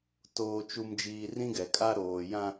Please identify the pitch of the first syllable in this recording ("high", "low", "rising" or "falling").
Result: low